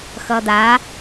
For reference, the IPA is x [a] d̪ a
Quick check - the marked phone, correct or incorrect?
incorrect